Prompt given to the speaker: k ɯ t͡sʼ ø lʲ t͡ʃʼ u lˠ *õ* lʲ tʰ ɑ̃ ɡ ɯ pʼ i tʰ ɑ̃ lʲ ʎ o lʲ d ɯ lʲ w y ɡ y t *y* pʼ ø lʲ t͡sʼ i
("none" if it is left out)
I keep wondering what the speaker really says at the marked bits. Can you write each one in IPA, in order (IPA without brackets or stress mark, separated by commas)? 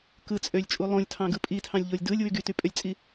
õ, y